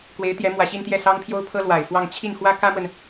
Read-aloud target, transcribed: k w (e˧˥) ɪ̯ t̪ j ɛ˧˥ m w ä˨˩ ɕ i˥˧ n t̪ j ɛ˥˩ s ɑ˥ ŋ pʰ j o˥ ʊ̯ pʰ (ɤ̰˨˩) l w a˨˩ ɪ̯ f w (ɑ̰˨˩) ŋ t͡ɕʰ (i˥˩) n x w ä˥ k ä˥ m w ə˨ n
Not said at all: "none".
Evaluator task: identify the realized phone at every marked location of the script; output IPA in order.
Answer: e˧˥, ɤ˥, ɑ˥˧, i˥˩

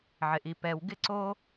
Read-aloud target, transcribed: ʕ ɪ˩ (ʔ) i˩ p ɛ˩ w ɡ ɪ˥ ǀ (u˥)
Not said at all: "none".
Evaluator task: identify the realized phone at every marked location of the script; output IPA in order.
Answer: ʔ, o˥

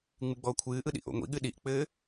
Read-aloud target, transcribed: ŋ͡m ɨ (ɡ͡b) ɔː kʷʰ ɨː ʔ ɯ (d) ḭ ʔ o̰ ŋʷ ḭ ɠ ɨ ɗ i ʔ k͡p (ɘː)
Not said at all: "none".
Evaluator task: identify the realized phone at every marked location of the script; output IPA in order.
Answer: ɡ͡b, ɗ, ɘː

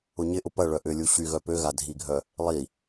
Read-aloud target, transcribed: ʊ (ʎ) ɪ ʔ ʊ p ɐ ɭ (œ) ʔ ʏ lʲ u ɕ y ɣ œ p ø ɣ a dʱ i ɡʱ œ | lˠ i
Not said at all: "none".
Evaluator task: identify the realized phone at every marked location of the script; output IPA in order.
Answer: ɲ, œ

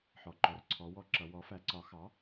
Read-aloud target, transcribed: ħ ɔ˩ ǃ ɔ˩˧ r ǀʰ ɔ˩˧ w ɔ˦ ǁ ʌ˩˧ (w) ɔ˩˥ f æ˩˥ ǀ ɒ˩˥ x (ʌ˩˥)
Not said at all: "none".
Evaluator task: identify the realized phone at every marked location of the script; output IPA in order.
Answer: w, ɑ˩˥

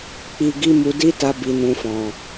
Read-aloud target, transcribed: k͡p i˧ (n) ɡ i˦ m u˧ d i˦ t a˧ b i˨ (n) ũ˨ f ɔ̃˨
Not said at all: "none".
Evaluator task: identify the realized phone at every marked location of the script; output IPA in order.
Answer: none, n

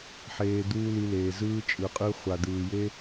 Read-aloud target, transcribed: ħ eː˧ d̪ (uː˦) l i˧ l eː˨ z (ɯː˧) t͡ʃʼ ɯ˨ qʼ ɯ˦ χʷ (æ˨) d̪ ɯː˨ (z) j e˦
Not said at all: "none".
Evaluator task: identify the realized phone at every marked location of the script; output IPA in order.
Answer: uː˦, ɯː˦, a˨, none

